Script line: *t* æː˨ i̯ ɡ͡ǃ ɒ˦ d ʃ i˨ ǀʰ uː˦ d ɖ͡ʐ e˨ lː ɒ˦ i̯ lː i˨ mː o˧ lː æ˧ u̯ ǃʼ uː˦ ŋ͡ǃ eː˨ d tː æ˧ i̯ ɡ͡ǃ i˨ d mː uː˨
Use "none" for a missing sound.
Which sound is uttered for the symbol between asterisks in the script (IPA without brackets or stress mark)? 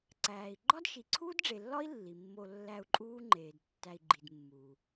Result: ǀ